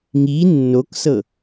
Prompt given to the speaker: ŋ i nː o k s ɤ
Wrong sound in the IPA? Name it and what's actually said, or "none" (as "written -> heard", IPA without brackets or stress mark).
none